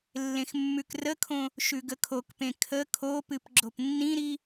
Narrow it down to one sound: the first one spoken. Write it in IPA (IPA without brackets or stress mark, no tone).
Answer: lː